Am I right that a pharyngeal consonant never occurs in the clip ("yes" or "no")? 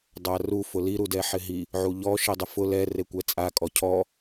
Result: no